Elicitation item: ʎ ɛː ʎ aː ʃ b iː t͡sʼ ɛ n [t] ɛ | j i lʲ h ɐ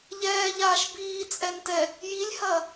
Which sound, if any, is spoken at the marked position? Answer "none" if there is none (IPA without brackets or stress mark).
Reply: t